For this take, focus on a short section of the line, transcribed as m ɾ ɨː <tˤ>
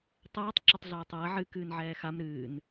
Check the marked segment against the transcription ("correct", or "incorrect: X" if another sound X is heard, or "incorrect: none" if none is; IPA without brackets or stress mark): incorrect: n